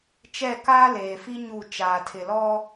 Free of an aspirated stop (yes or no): no